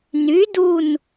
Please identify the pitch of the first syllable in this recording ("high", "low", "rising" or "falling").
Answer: rising